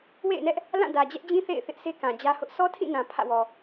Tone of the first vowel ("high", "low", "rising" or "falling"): falling